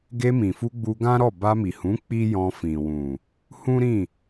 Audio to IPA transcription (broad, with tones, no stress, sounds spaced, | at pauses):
ɡ e˧ m ĩ˨ f u˧ ɡ͡b u˧ ɡ ã˦ ɾ ɔ˦˨ b a˧ m i˨ h ũ˨˦ k͡p i˦ j ɔ̃˧ f ĩ˨ w ũ˨ | h ũ˦ ɾ ĩ˦˨